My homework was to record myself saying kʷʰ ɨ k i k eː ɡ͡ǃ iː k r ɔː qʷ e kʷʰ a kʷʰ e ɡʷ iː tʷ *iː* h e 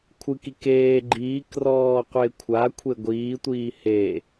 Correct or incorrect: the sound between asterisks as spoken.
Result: correct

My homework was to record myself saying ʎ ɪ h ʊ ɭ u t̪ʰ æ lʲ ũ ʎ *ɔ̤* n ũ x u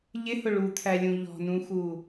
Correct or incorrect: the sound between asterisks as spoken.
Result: correct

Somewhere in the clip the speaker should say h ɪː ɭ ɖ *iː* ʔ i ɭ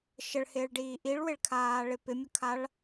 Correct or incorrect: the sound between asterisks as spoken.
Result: correct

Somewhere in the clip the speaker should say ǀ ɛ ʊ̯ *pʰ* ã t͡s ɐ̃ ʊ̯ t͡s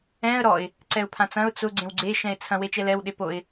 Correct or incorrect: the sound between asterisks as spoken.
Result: correct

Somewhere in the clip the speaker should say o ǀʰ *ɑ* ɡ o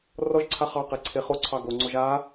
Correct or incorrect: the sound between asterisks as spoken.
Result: correct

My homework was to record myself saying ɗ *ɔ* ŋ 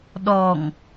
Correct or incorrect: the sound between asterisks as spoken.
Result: correct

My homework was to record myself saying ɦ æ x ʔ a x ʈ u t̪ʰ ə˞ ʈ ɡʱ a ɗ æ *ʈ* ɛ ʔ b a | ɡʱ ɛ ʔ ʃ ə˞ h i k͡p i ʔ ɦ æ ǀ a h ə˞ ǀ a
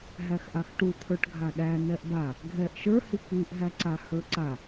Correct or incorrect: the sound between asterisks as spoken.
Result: incorrect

